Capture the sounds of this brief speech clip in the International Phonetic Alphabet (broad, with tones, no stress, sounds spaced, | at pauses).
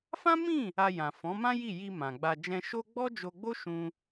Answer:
f ã˦ m ĩ˦˨ | a˧ j ã˨ f ɔ̃˨˦ m ã˦ j i˦˨ j i˧ m ã˨ ɡ͡b a˧ d͡ʒ ɛ̃˧ ʃ o˦ ɡ͡b ɔ˦ d͡ʒ o˧ ɡ͡b o˦ ʃ ũ˦